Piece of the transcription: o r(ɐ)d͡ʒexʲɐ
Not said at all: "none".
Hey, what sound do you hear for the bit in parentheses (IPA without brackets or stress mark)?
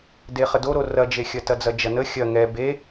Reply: ɐ